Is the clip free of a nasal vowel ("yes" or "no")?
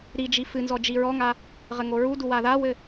yes